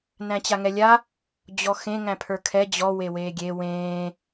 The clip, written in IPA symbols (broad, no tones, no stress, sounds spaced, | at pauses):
n æ̃ t͡ɕ a ŋ ɛ lʲ a | d͡ʑ ɔ x ẽ ŋ æ̃ pʰ ə˞ kʰ ɛ d͡ʑ ɔ w e w eː ɡʲ e w ẽː